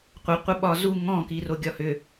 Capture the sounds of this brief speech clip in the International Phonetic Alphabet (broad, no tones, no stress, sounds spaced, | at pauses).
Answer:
qʷ ə qʷ ə ɓ ɒ z u ŋ ɔ̃ k i r o ɡʲ ɒ h ʏ